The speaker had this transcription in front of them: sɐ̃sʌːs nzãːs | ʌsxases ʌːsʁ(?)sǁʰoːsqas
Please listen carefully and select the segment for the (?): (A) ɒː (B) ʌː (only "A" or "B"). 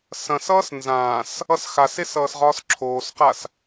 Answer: A